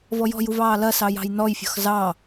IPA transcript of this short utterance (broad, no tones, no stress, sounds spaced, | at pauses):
v ɔ j ɔ̤ j u v ɑː l ɐ s ɑ j ɑ̤ j n ɔ j fʲ ɔ̤ x z ɑ